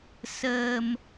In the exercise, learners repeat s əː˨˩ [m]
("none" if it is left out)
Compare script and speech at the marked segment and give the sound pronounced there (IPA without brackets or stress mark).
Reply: m